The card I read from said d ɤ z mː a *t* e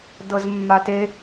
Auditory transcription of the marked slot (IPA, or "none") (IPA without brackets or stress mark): t